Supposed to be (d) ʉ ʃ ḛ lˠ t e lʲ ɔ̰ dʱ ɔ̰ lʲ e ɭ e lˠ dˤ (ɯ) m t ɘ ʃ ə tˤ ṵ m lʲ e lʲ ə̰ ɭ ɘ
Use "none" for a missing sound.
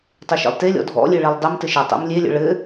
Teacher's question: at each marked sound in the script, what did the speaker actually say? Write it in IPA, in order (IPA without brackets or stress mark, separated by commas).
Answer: tˤ, ɯ